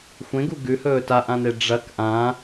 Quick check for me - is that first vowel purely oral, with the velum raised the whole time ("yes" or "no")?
no